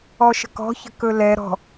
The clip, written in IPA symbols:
ɔʃə̤kɔ̤çə̤ kɵlɛ ɾɔ̤

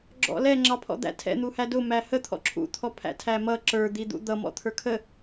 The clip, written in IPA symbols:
ɡ͡ǁɔ̰lɛ ŋ͡ǁɑpʰɔ̰d̪æ̰tʰɛ̰ n̪uhædʊ mæhə t̪ʰɔ̰ǁʰṵt̪ʰɔ pʰæ̰tʰæmʌ ǁə˞d̪id̪ṵ d̪ʌmɔ̰ t̪ʰə˞kʰə

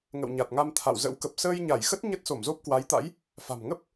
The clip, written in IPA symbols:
ŋə̰˧˨wɲa˨˩t̚ŋa˧m t̪ʰa̰˧˨wzə̰˧˥w kə˨˩p̚səː˧jɲa˧˩jxə˦˥t̚ ɲə˦˥t̚ so˧˩mzo˦˥p̚kwa˨˦jt̪a̰˧˥j | fa̤˨˩m ŋə˦˥p̚

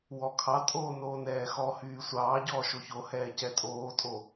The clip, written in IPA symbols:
wɔkʰɑtʼoː noːnɛːxɔhyː sʷɑːɟɔː ʃoçohɛː cɛtʼoːtʼo

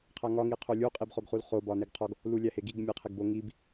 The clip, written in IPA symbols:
qʰæŋɒ ŋiqʰolʲu qʼibχoɡχulχo bɒneɡqʰɒɡ | lulʲæheɡiɡ mʲeqʰeɡbo ŋib

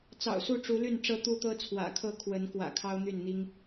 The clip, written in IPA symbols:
t͡sɑ̰˨˩ʊ̯su˥˨ʈ͡ʂu˨˦ly˥˨n ʈ͡ʂɤ˦ t̪u˦t̪ɤ˦t͡sʰwä̰˨˩kʰɤ˥˨ kʰwə˨˦n kwä̰˨˩kʰɑ˦ʊ̯n̪y˥˨nn̪i˦ŋ

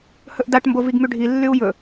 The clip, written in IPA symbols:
hɵʔdaʈmbo viɡmyɖʱilːyu̯ jɵ

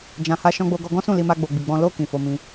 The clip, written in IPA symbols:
d͡ʒã˨ha˧ ʃɔ̃˧ɡ͡bo˧ɡɔ˧ ɡɔ̃˦sũ˦˨li˧ma˧ ɡ͡bo˨ɡ͡bi˨ɡ͡bɔ̃˧ lo˧ kĩ˨fo˧ mĩ˧

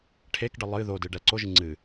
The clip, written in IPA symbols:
ʈʰekɖə lˠɨ ðodɨ ɖɛǀoʒɨ ŋ͡ǀɨ

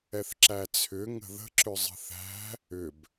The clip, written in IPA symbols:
ɛθǁæt͡sʰʏ ŋə̤ðə̤ ǁʏzˤə̤θæ̤ | ʏb

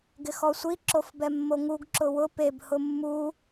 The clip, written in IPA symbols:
ɡɪxɔsʷi ǁofbɛmːoŋuɡ ǁʊwʊ peb hʊmːu

